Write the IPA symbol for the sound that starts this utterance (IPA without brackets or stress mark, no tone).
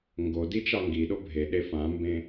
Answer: ŋ